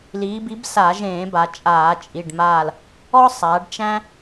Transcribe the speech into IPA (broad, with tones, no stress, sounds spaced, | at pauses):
l iː˩˧ b i˨˥ b s a˧˩˧ ʒ ẽː˧˩˧ b a˩˧ t͡ʃʼ aː˧˩˧ t͡ʃʼ i˩˧˩ ɖ m aː˦˨ l | ɔ˦ sˤ a˩˧ ɖ t͡ʃ æ̃˦